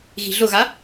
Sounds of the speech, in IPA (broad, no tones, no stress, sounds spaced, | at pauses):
ɣ i̤ ɮ ʊ ɣ a